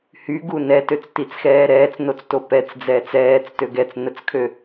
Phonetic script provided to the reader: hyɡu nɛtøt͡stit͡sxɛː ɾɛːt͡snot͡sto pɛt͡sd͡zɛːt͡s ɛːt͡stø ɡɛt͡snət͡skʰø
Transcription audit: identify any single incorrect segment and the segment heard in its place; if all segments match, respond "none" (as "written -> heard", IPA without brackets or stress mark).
none